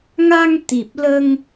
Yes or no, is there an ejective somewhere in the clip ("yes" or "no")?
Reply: no